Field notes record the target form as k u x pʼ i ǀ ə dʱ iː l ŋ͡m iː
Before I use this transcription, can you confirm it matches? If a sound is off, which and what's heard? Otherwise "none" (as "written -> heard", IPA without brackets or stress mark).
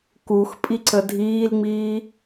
none